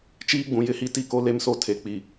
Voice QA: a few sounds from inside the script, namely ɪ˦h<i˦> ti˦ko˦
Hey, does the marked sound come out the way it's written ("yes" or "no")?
yes